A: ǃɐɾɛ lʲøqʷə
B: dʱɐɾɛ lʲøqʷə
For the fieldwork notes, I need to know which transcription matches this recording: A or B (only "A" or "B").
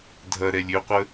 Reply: B